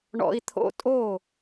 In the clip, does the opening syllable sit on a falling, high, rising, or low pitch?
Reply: high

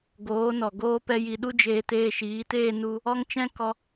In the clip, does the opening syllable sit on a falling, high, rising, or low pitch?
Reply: rising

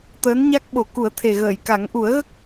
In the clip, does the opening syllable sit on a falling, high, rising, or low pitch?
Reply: rising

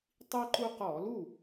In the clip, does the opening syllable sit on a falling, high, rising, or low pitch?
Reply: high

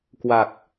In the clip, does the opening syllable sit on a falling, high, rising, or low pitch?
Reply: low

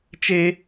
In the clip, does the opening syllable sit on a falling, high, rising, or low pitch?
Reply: high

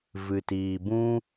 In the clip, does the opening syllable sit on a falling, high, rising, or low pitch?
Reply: low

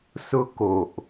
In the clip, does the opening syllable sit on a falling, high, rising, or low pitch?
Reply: high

